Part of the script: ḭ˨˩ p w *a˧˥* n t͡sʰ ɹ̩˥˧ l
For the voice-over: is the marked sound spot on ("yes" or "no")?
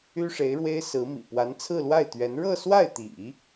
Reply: yes